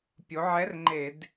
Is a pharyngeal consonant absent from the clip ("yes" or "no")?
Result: no